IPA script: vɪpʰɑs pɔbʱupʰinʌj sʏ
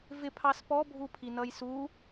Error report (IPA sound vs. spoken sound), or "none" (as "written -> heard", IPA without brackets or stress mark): ʏ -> u